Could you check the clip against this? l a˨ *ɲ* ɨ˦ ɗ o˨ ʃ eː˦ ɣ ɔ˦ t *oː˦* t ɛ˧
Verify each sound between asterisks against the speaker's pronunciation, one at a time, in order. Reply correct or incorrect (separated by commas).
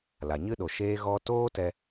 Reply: correct, correct